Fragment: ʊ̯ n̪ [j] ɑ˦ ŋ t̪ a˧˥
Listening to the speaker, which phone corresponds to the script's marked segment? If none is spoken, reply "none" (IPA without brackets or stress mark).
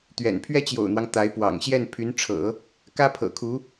w